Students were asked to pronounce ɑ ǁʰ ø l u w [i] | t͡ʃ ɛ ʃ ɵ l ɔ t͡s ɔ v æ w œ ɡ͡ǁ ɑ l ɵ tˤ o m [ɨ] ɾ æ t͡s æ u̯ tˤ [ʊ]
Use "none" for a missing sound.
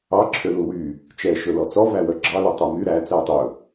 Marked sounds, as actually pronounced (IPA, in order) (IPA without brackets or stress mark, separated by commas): y, y, ɵ